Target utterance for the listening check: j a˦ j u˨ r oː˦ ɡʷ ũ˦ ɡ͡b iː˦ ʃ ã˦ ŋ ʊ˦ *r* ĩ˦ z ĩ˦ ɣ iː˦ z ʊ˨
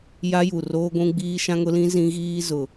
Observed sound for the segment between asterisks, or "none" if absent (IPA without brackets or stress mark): l